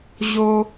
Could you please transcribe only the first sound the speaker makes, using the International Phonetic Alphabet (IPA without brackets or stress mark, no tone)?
ʑ